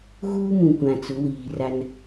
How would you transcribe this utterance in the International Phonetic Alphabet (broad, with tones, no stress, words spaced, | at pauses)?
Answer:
ɣuː˦mũ˨kʷã˨ t͡sʊ˨˦wiː˨ra˦n